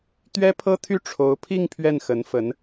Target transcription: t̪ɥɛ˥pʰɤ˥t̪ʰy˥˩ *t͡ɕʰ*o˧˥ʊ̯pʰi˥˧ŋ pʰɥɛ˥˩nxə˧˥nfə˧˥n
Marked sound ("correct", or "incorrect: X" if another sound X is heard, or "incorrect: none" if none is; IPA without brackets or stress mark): incorrect: ʈ͡ʂʰ